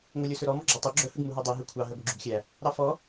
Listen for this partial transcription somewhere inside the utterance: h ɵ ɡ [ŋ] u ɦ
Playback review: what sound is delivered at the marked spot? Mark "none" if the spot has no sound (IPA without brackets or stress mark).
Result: m